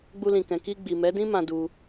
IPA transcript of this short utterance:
ɡ͡bu˧lĩ˨kɛ̃˨ ki˧ ɡ͡bi˨mɛ˨˦dĩ˦mã˧ du˧

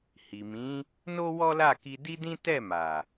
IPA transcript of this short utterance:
hi˨mĩ˨˦ | no˦wɔ˦la˦˨ ki˧di˦dĩ˦ tɛ˦˨ma˨

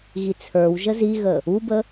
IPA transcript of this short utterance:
ɣit͡sʰə˞wʒə ziɣə | ubə

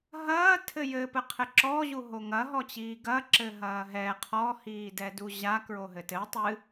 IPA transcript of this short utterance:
ɦɐː tʰɘjɘpɘqʰɘ ǁɔʑu ɦoŋɐɦɔt͡ɕiː ɡɐ ǁɘɦɐːɦɛ qʰɔhiːdɛdu ʑa kɹoɦɘtɘ tˤɨ

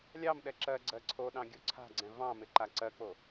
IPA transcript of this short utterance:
lʲɑmɗɛ ǁɜ ɡ͡ǀɜǀʰoɗɑ̃ ɡʲoǀʰa̤ɡ͡ǀɛ̃ vɑ̃mɪ ǃaǀɜk͡po

